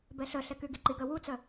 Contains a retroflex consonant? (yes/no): no